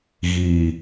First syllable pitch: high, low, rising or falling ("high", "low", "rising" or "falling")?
low